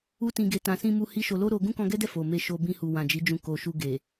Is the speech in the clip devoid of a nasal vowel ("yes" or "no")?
no